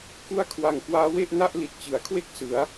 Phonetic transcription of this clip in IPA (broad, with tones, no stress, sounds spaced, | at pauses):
k u˦˥ a̯ kʰ w a˨˩ ŋ k w aː˦˥ w e˥˩ ʔ n a˥˩ ʔ l i˨˩ t̚ t͡ɕ ɯ˩˦ a̯ kʰ w e˥˩ k̚ s ɯ˩˦ a̯